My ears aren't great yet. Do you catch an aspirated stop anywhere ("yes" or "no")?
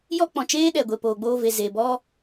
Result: no